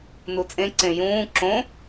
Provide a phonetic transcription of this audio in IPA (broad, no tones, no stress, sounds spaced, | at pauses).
n u t͡sʼ ẽ ǀ ẽ j ũː ǁ õ